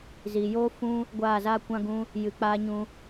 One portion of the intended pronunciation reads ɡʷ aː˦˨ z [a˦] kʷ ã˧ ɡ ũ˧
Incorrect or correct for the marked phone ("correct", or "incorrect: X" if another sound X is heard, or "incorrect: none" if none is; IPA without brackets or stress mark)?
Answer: correct